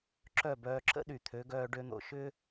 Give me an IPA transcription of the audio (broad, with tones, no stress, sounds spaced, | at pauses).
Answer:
ǁ œ˥˩ b œː˧ ǁ ə̰˥ ɗ y˩ t̪ʰ ø˩˥ ɡ œː˧ ɖ ø˧ n̪ o̰˩ ʃ ʏ˥